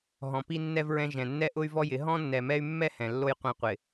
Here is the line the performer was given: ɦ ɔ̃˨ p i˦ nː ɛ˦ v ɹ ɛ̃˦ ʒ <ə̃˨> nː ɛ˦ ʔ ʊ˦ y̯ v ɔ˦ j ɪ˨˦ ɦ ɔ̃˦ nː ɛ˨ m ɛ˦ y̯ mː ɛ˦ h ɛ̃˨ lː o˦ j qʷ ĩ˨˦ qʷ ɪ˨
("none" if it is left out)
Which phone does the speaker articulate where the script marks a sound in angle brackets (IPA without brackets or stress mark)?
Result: ɛ̃˨